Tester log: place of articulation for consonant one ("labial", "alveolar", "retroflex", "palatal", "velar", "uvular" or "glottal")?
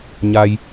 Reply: palatal